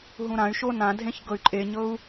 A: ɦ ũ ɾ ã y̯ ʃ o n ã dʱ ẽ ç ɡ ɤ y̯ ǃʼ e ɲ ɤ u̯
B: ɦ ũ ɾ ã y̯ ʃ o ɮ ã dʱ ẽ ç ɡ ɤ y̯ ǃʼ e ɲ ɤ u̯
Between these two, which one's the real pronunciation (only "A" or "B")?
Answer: A